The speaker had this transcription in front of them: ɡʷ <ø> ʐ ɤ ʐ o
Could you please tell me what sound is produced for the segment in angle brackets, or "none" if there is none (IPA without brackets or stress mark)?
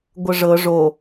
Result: ə